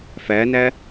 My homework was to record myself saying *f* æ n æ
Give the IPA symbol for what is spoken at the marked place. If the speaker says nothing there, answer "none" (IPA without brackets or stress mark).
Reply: f